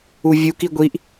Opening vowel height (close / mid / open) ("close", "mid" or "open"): close